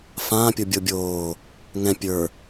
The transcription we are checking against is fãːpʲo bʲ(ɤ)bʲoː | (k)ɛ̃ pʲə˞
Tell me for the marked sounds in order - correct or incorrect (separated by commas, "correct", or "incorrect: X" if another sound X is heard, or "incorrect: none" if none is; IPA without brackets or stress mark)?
incorrect: o, incorrect: ŋ